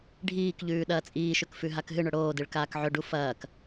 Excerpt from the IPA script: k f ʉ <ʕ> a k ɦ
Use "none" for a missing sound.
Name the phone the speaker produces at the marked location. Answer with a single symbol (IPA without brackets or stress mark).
ɦ